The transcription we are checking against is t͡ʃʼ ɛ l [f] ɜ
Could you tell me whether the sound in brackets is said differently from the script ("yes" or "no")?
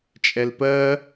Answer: yes